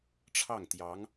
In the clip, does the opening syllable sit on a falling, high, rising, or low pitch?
falling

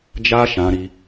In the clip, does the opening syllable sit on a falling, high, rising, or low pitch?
high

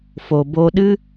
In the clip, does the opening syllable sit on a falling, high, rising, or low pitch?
low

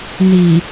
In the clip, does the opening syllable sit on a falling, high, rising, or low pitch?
low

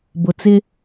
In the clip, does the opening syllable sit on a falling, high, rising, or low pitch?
high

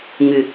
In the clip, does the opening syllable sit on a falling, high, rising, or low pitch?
low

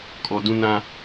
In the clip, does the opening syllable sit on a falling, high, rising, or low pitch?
low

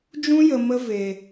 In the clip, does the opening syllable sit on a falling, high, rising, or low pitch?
high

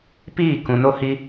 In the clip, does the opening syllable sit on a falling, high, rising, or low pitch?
falling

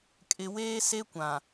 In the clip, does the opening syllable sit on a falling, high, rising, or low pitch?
low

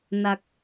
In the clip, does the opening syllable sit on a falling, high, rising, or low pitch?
low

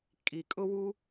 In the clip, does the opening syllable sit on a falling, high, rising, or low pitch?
low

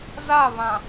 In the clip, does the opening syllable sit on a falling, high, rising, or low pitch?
falling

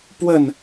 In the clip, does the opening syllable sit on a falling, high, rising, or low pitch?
falling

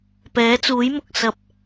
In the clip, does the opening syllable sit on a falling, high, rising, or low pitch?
rising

